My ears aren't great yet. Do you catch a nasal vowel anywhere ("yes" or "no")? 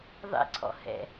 no